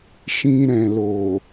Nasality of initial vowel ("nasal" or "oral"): nasal